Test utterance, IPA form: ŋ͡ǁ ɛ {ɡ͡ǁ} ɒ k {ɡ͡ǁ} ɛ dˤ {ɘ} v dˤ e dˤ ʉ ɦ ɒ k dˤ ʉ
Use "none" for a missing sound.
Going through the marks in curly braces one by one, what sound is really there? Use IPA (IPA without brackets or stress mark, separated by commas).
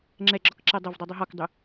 ɡ͡ǁ, ǁ, ɘ